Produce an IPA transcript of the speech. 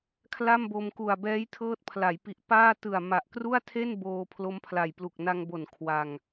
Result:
kʰ l a˥˩ m b o˧ m k u˨˩ a̯ b ɛː˦˥ j tʰ ɤː˦˥ t̚ pʰ l a˩˦ j p i˨˩ ʔ p aː˥˩ t ɯ˨˩ a̯ m a˨˩ ʔ k r u˥˩ a̯ tʰ e˥˩ n b oː˧ pʰ l o˦˥ m pʰ l a˨˩ j p l u˨˩ k̚ n a˧ ŋ b o˨˩ n kʰ w a˧ ŋ

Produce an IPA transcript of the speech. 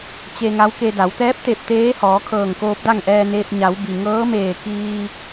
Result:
t͡ɕ e˧ ŋ a˧˥ w k e˧ d a˩˧ w t̪ ɛː˧˥ p̚ t̪ e˧˩ p̚ t̪ eː˧˥ h ɔː˩˧ kʰ ɤː˧˩ ŋ k oː˧ p̚ d a˥˨ ŋ ʔ ɛː˧ n eː˧ p̚ ɲ a˩˧ w b i˩ ŋ ɤː˧˥ m eː˧˩ k iː˧

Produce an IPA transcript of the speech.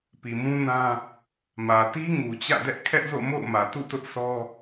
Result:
p i˨ m ũ˦ n ã˦ | m ä˨ t i˦ ŋ u˨ t͡ɕ ä̰˦˨ d ɛ˦ ʔ kʰ ɛ˦ ʔ z o̰˦˨ m o̰˦˨ ʊ̯ m ä˨ t ṵ˦˨ t ʊ˦ ʔ sʰ ɔ˦

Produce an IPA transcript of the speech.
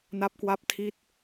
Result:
n a˦˥ p̚ k w a˦˥ p̚ tʰ i˥˩ t̚

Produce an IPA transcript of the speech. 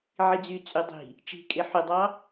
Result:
ʕ i d͡z y t͡sʼ y dˤ i̤ | t͡ʃ i̤ kʼ e ħ y dˤ ɑ

